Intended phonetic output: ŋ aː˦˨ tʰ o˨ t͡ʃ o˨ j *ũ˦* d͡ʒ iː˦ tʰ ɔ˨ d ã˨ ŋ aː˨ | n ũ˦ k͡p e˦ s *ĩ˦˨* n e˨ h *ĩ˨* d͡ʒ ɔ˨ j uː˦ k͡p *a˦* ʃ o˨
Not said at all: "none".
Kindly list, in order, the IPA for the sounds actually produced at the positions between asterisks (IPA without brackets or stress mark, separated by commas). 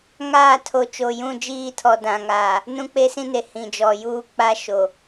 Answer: ũ˦˨, ĩ˦, ĩ˨, a˦